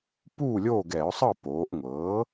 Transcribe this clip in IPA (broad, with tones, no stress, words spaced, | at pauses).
puː˥˨lʲoː˥˨ɡɛ˧˩˧ʊ̯sˤɤ˥˨ poː˩˧ʔŋʷɤ˩˥